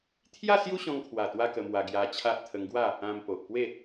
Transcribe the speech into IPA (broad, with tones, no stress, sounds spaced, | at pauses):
t̪ʰ j a˥˧ s j u˦ ɕ ɔ̃˧ ŋ kʰ w a˨˩ t̪ w a˧ k ə˧ m w a˧ ɡ j a˧ t͡ɕʰ a˦ ʔ t̪ʰ ə˧ ŋ ɡ w a˥˧ | ã˧ m p o˨ ʔ p w e˥˧